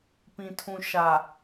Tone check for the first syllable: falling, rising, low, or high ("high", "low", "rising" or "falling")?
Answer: low